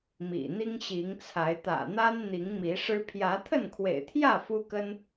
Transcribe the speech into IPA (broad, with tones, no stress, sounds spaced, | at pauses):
m ḭ˨˩ n̪ i˦ ŋ ɕ i˨˦ ŋ t͡sʰ a˨˦ ɪ̯ t̪ ä̰˨˩ n̪ a˦ n n̪ i˨˦ ŋ m i˨˦ ʂ ɻ̩˦ pʰ j ä˨˦ t̪ʰ ə˥˨ n kʰ w ḛ˨˩ ɪ̯ t̪ʰ j ä˥˨ f u˦ k ə˦ n